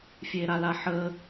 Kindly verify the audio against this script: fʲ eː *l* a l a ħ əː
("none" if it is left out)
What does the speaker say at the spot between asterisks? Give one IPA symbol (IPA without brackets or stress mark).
ɾ